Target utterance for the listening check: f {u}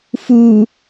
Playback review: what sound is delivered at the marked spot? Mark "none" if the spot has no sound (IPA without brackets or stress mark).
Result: u